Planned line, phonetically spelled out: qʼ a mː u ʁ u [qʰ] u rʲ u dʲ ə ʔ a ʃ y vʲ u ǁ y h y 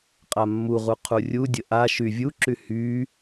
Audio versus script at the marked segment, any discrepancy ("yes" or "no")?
no